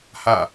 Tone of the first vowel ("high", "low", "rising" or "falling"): falling